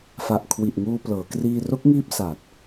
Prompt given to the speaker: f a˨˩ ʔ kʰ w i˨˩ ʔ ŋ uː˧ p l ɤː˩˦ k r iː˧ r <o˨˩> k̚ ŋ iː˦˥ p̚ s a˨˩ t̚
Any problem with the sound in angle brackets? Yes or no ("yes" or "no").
yes